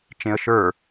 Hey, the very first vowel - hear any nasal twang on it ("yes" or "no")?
yes